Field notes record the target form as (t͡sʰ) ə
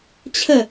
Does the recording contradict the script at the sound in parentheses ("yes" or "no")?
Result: yes